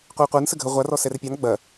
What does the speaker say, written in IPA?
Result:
qʷiu̯qʷə˞n səɡʱə ʁʷarɔ sɛrpʲɑn ɡ͡bɐ

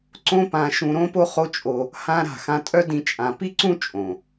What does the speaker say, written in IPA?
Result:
ǀõ˦pã˧ ʃũ˧ɾõ˦po˦ χo˦t͡ʃʼo˧ | hã˦ɾa̤˦˨ xã˧tʼœ˦ dĩ˦t͡ʃʼã˧ pi˦ǀũ˦ t͡ʃʼõ˨

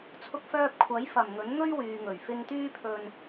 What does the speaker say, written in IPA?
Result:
t͡sʰʊ˧k̚fœː˧p̚ kʷʰɐ˨˥jfɐ˨˩mŋɵ˨˥nŋɵ˥ɥ wyː˨ŋɵ˨˩ɥfɪ˧ŋt̪yː˥ pʰɵ˧n

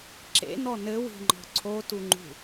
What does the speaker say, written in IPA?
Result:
ǁḛnɔ nɘwi̤ŋ͡ǃɔ̤ ǀʰotuŋ͡ǃṳ

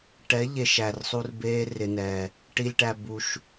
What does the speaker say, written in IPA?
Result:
ʈɛ˨˦ ʎe˨ʃ æ˨rsˤu˧r beː˧ rɪ˨nɛː˨ | ʈi˨lʲʈæ˨ bu˨ʃ

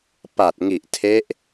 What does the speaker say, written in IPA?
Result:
pa˨˩t̚ŋi˨˩ʔtʰe˦˥ʔ

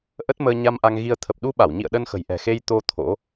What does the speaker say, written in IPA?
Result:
ʔə˦˥t̚məː˧ ɲa˧mʔa˧ŋɣi˧ə̯ t̪ʰə˨˩p̚ɗu˧ɓa˧˩wɲḭ˧˨ə̯ ɗə˧nxə̤˨˩jʔɛ̤˨˩ xe˧jt̪o˧ t̪ʰo̰˧˥

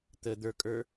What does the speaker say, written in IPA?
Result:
t̪ə d̪ə˞kʼə˞

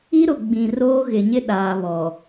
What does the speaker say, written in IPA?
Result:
i˦ɾʊ˨ ɡ͡bĩ˨roː˦ ɣɪ˨ɲɪ˦ ɗaː˨βɔ˨

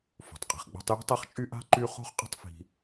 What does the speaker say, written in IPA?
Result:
fo̤˩tˤqʼi̤˩χ ɡ͡ba̤˦tˤji̤˥tˤæ˥χt͡ʃʼy˥ ʔa̤˥ǃy˦ χo̤˦χqʼə̤˦tˤfi̤˨

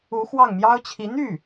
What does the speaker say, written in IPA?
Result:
u˧˥xwɑ˥˩ŋ mjɑ˥ʊ̯t͡ɕʰi˧˥ n̪y˥˩

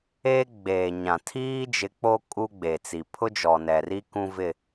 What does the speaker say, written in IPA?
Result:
eː˦ ɡ͡beː˨ɲã˨ tʰiː˦d͡ʒɪ˨˦ k͡po˦ kʼu˦ɡ͡be˨t͡si˨ pʰʊ˦d͡ʒɔ˨nɛ˨ri˦ kũ˦vɪ˦˨

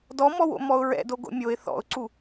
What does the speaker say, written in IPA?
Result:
dɔmɔwo̰ mɔʊ̯ɹɛ̰do ɡo̰mʲoɪ̯ θɔ̰ʊ̯ǀu

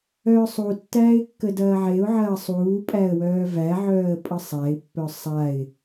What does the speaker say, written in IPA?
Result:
œːsˤutːæːɪ̯ kːədɐːʕeʊ̯ʕɐː sˤuː pʼæə̯wœːvæʕœːə̯ pʼəsˤæɪ̯pːœ sˤaɪ̯

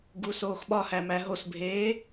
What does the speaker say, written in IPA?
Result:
ɡusoːxɓɒhæ mæɦosbʱeː

